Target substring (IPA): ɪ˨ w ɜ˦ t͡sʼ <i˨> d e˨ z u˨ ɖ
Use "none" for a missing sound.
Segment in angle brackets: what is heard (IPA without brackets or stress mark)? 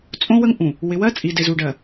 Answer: i˨